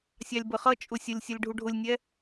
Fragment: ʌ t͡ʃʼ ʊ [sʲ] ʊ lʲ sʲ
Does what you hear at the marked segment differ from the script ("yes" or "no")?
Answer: no